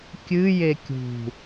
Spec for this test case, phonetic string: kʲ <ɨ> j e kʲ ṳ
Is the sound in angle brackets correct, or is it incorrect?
correct